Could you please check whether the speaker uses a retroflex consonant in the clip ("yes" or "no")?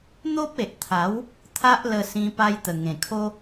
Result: no